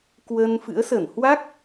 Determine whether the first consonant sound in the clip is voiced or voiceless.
voiceless